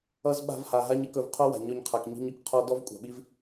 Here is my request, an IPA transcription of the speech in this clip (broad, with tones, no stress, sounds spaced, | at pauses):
ʌ˧ z ɓ a̤˧ v h a˨ ɦ a˦ ɲ ɨ˦ k ɵ˧ v qʰ o˦ w a̤˨ ɲ ɔ˧ ɲ qʰ a˨ k ɲ i̤˧ ɲ ɵ˨ k qʰ ɔ˦ d ɔ˦ v kʷʼ a̤˨ ɓ i˦ v